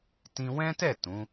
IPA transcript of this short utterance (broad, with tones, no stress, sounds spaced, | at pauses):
t ĩ˧ w ɛ̃˦ t ɛ˦˨ t ũ˨˦